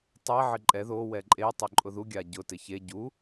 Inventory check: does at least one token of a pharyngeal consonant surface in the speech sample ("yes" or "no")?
yes